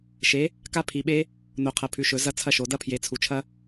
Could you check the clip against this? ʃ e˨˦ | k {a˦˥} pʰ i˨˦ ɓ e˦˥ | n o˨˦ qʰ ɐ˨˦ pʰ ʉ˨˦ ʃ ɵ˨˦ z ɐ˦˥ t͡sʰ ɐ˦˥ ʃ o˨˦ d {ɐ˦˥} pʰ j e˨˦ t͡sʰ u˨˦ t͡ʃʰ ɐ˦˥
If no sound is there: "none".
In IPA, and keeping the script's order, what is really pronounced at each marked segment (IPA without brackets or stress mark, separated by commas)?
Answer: a˦˥, ɐ˦˥